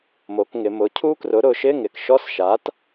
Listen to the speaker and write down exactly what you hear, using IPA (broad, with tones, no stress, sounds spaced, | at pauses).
m o˩˧ k ŋ ɪ˩˧ m ʊ˩˥ cʰ u˦˥ k r ʊ˩˥ ɾ ʊ˩˧ ʃ ɪ˧˥˧ ŋ ɪ˩ k ʃ ɔ˧˥˧ s ʃ a˩˥ t